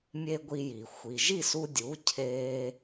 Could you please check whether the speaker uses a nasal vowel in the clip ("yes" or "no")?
no